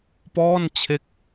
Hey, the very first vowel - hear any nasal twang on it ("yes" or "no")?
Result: no